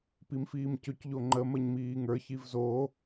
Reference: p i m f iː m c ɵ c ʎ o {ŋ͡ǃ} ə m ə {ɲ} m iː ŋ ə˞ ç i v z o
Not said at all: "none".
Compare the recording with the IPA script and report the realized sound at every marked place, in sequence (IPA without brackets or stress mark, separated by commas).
ŋ͡ǃ, ɲ